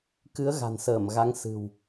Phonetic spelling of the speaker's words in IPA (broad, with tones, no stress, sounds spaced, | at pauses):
k ɨ˨˦ ə̯ ɣ a̤˨˩ n s əː˧˩ m ɣ a˨˦ ŋ s ɨ̤˨˩ w